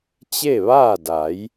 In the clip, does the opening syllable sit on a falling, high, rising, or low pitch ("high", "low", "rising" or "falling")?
falling